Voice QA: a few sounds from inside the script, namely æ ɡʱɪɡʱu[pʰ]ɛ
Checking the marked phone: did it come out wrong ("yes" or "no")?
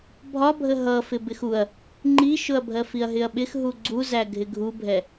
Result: yes